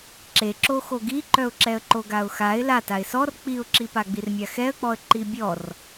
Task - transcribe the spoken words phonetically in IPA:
ǁ e ǁ o x o ɡ i ǃ œ ʊ̯ ǁ ɛ ə̯ ǃ o ɡ a ʊ̯ x a ɪ̯ l a t a ɪ̯ s ɔ r k͡p i ʊ̯ ǁ i p a ɡ͡b i r mʲ a x ɛ ə̯ k͡p ɔ ə̯ ǃ i bʲ ɔ r

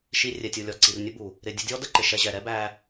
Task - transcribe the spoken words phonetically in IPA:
ʃ i˧ rʲ ɛ˨ tʲ u˨ lʲ ɔ˨ ǀ i˨ r nʲ ə˦ b u˨ | ɾ ɪ˨ dʲ ə˧ dʲ ɔ˦ d ə˦ ǃ ɪ˨ ʃ ɛ˧ ʑ ɛ˨ ɾ ɛ˦ b æ˧

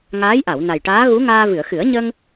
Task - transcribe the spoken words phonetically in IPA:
ŋ aː˧˥ j ʔ a˨˩˨ w n a˨˩ j ʈ aː˧˥ ɣ u˧˥ ŋ aː˧ v ɨ˨˩˨ ə̯ x ɨ˨˩˦ ə̯ ɲ ə˧ ŋ

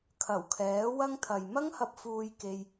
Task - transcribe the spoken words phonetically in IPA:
kʰ ɐ˨˩ w kʰ ɛː˨˥ w ɐ˥ ŋ t̪ʰ ɐ˨ j m ɐ˥ ŋ h ɐ˧ p̚ f uː˧ j k e˧ j

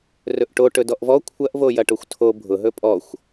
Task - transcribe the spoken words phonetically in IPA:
r ɵ ʔ ʈ o ʈ ɵ d ɔ ʔ v ɔ kʷʰ ɐ ʔ v o j ɐ ʈ o xʷ tʰ o bʱ ʊ ɦ ɵ pʼ ɔ xʷ

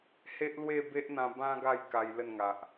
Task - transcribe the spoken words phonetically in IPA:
h e˦ ʔ l w e˥˧ b e˦ ʔ n̪ ã˧ b ã˦ ɡ a˥˧ j k a˧ j l ə˥˧ n ŋ a˨ ʔ

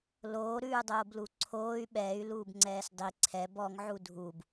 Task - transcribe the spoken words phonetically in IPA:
l oː ɾ ʉː dˤ oː b l u ǀʰ oː y̯ ɓ ɛː y̯ l uː b ŋ͡ǀ ɛː s dˤ i ǀʰ ɛ b ɔ ŋ ʕ u dʱ u b

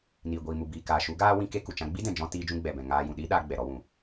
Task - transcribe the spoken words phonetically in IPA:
n iː˨ ɡʷ iː˨ m u˨ b iː˨ k aː˨ ʃ u˨˦ ɡ aː˦ w ĩ˦ k e˧ k u˨ t͡ʃ ã˧ ɡ͡b i˦ d ɛ̃˨ d͡ʒ ɔ̃˧ t iː˧ d͡ʒ ũ˧ ɡ͡b ɛ˨ b ɛ̃˨ ŋ aː˧ j ũ˨ ɗ iː˦ ɗ aː˧ ɡ͡b ɛ˨ ɾ ɔ˧ w ũ˨

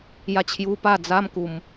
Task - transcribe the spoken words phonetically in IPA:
j a˧ t͡ɕʰ j u˧ p a˥˧ d͡z a˦ m k u˧ m

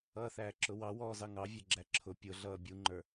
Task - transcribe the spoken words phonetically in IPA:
ʌː θ æː ǁ ʊ w ɑ w ɔː z ɑ ŋ ɑ vʲ ɛ ɡ͡ǁ æ ǁʰ ʊ pʲ ʊ ɮ ʌː bʲ u ŋ͡ǃ ə˞

